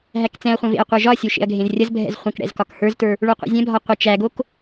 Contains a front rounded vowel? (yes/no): no